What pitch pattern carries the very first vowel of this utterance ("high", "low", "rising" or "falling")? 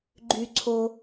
high